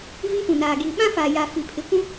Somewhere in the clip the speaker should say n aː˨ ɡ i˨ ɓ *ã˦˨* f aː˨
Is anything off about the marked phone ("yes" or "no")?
yes